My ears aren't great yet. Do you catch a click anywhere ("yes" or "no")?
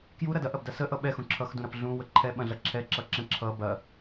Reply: yes